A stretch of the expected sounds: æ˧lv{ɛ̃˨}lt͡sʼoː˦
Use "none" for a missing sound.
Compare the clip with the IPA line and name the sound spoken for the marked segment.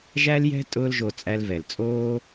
ɛ˨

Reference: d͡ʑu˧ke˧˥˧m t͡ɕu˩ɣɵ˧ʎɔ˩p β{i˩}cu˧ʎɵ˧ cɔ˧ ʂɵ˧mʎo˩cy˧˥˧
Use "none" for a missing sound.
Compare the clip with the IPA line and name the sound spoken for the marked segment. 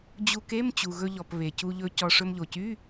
e˩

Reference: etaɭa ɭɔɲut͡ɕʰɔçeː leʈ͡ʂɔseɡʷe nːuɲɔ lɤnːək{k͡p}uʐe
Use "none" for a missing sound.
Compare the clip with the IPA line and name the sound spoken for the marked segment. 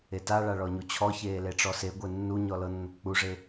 k͡p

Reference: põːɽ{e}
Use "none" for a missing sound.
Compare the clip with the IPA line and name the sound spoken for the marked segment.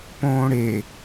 e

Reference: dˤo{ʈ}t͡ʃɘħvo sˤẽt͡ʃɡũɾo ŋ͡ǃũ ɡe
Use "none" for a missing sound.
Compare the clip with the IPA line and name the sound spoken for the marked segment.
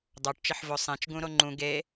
ʈ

